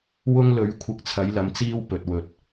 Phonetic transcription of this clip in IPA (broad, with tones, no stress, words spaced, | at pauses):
wʊ˥ŋlɵ˨˥ɥ kʷʰɪ˧k̚t͡sʰɐ˨˥j lɐ˨m t͡siː˥w pɵ˨t̚wɵ˨t̚